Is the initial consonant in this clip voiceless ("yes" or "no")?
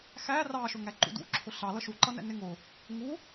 yes